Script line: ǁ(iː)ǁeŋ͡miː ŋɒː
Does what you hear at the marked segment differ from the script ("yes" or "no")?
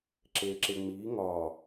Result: yes